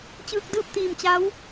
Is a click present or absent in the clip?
absent